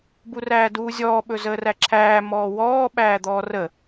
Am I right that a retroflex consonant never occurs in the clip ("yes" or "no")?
yes